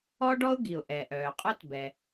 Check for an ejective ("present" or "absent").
present